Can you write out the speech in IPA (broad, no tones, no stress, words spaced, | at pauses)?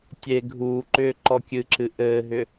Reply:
tʲe ɡʱuːǃʏː ǃɔkʲɨǁɨ ʔɘːɦʏ